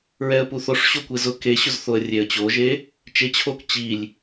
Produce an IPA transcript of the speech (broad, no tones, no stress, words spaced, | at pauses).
ɹɛə̯puθoʂ ɕokʷezʊ keɕʊzθoə̯ rʲeə̯t͡ɕoʒe | t͡ʃet͡ɕʰok t͡ɕilʲ